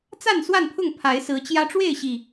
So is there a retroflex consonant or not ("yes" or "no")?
yes